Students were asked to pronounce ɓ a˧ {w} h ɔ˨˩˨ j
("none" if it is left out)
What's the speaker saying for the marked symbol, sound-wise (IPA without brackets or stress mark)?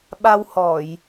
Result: w